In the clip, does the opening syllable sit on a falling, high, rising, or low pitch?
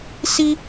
high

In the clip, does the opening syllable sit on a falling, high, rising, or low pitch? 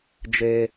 high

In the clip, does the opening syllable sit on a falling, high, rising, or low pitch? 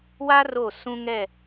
high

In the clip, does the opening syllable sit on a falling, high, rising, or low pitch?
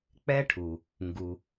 high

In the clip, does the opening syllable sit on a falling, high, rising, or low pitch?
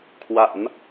low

